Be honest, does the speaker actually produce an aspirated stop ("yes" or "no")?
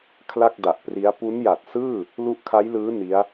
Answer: yes